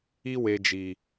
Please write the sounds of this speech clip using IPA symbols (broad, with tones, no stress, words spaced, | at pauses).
i˦ we˧d͡ʒi˨